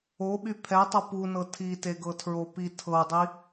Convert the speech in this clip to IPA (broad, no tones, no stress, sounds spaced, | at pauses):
o ɓ y pʰ ɛ tˤ ʌ p u n ɤ tʰ i t e ɡ ɤ tʰ ɹ o p i tʰ ɤ dˤ i